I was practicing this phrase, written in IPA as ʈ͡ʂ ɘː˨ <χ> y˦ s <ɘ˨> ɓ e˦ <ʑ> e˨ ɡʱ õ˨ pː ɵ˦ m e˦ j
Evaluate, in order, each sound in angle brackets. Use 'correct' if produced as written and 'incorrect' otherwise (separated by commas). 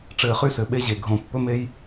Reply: correct, correct, correct